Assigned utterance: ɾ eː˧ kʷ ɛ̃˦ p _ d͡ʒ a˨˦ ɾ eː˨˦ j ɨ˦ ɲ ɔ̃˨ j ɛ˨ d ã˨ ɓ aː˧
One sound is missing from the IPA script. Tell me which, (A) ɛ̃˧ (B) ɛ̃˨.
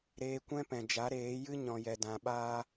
B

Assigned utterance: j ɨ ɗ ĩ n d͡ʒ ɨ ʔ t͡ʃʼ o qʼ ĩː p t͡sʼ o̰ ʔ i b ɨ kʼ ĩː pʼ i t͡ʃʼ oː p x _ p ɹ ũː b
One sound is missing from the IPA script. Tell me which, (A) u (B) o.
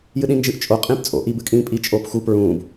A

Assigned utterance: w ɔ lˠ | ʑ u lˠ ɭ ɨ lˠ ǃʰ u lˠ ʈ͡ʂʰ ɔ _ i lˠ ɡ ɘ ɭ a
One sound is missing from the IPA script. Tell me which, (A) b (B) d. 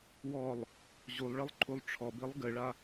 A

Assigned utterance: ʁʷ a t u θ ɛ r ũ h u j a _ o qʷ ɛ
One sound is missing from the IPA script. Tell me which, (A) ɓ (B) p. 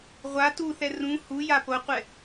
B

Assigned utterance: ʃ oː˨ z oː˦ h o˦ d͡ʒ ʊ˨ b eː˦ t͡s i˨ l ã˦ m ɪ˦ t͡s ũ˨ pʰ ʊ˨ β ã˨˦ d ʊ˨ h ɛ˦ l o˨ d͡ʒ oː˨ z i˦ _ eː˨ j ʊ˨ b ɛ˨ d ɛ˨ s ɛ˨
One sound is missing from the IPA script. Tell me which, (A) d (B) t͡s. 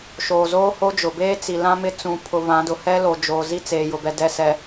B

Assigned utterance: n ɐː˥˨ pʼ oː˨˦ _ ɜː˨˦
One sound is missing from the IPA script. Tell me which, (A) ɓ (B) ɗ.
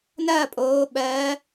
A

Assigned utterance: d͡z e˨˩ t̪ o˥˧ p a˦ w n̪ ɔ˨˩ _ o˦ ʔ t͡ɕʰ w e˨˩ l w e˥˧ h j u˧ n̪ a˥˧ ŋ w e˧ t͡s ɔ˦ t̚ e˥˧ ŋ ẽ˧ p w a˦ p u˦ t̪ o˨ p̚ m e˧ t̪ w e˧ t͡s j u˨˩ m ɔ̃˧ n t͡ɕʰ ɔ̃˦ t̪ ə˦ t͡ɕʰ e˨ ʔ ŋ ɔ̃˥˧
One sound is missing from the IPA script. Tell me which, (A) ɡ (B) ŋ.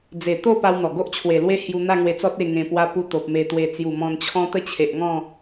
A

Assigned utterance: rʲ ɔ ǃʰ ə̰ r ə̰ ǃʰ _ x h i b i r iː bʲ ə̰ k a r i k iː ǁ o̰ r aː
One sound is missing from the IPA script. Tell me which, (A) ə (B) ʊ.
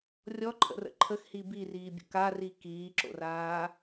A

